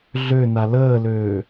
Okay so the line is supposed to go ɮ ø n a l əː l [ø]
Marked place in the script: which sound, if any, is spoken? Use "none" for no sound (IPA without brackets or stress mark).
øː